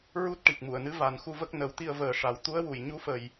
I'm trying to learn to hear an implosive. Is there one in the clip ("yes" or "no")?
no